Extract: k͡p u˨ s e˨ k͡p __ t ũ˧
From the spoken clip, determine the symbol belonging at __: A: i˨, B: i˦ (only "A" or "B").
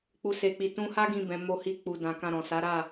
A